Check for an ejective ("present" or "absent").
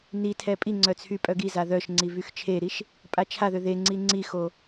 present